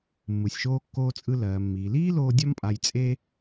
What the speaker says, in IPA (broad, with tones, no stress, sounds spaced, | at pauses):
mː ɯ˩ sʲ ʃ oː˧ kː oː˧ t͡sʼ ɯ˧ l ɜː˩ mː iː˩ l iː˥ l oː˧ dʲ ɒ˥ m pʼ a˧ j t͡sʼ e˥